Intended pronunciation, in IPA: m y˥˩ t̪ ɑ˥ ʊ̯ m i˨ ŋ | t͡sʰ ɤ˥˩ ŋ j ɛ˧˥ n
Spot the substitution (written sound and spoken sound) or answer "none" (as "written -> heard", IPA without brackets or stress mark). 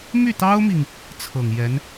ɤ˥˩ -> ɤ˨˩